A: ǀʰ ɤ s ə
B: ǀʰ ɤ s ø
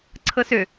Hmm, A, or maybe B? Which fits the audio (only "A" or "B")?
B